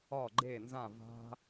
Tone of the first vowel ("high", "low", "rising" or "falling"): falling